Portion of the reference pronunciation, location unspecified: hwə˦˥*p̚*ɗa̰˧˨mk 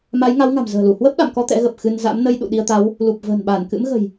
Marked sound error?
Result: no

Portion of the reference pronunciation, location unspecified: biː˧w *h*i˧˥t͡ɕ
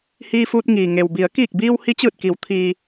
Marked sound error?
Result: no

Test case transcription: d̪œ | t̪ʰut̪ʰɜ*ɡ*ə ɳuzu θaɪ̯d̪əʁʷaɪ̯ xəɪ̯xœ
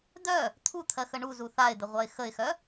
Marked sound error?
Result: yes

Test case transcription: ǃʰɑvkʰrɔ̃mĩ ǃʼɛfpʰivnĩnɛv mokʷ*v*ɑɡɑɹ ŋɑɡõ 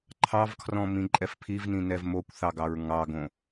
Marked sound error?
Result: yes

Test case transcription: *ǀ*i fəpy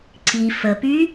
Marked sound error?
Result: no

